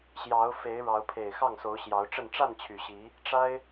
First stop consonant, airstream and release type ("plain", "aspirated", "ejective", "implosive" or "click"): aspirated